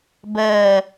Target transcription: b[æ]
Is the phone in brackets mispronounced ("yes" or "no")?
yes